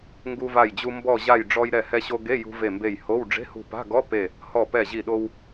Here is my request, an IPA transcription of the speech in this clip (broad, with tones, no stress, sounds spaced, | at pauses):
ŋ ɡ u˧ v a˧˩ j d͡ʑ u˧ m b ɔ˧˩ ʑ a˧˩ j ɖ͡ʐ ɔ˧ j ɾ ɛ˧˩ h ɛ˧ ɕ o˧ ɡ e˧˥˧ j ṳ˧ v e˧˩ m b e˧˩ j h o˧˥˧ w ɖ͡ʐ e̤˧˥˧ h ṳ˧˩ p a̤˧˥˧ ɡ ɔ˧˥˧ p e˧˩ | h ɔ˧˩ p ɛ˧˩ ʑ i˧˩ ɗ o˧ w